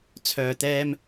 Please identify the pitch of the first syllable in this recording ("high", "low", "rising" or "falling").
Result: low